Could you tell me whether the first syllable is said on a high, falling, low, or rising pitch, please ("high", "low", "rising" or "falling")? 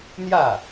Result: falling